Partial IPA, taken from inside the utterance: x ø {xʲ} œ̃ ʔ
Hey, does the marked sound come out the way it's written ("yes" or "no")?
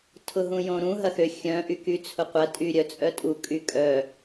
yes